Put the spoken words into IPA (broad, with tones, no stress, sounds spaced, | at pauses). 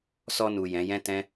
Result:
s ɔ˧ n u˨ j ɛ̃˨˦ j ɛ̃˦ t ɛ̃˦